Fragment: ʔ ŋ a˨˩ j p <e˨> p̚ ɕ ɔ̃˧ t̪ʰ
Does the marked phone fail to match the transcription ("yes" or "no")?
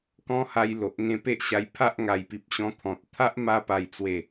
yes